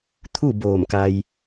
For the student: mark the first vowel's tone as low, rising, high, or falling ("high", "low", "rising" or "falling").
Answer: falling